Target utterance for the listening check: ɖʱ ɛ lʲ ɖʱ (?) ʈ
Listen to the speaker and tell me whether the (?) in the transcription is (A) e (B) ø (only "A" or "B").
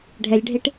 A